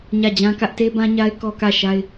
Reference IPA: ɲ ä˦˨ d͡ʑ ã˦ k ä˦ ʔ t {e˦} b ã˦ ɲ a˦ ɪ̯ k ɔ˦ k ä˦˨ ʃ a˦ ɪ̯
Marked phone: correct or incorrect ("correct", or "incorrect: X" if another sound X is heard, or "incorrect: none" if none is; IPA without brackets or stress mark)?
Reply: correct